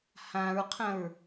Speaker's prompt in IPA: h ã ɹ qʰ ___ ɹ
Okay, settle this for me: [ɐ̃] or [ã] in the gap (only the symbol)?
ɐ̃